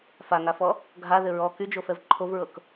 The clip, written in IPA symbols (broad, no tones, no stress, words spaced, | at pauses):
faŋafɔ | ɡʱaðɘ ɹɔ kyd͡ʒofɛv ǃʰovɹɤk